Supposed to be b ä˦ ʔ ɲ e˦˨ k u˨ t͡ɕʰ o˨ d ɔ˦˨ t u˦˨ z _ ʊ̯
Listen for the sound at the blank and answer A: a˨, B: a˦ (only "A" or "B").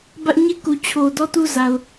A